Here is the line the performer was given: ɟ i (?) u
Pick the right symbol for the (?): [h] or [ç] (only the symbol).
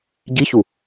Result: ç